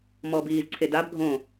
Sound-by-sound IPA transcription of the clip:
m ɔː b iː z ǀʰ e d a b ɡʱ õ

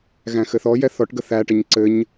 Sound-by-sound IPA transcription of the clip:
ɣ æ̃ x ɘ θ ɔ j ɛ θ ɔ ʈ ɡ ə θ æ ʈ ə ɲ ǀ ɘ ɲ

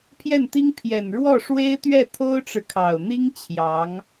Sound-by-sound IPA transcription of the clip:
pʰ j ɛ˥˩ n t̪ i˥ ŋ pʰ j ɛ˨˩ n ɻ w ɔ˥˩ ʂ w e˥ ɪ̯ t̪ ɥ ɛ˥˩ t̪ʰ o˥ ʊ̯ ʈ͡ʂ ɻ̩˨ kʰ ɑ˨˩ ʊ̯ n̪ i˥ ŋ t͡ɕʰ j ɑ˧˥ ŋ

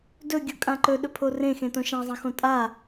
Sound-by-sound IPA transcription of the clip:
d ɵ ɡʲ o kʼ ã ǃ ɵ ɗ ɵ pʰ o r ẽ x ẽ t õ ʃ ã zˤ ɐ̃ x õ tʼ a

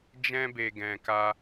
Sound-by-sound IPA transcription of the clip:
d͡ʒ ɛ̃˧ b e˨ ɡ ɛ̃˨ k a˧

